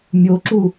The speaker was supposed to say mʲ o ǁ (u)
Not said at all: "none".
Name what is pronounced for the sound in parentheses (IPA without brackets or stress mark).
u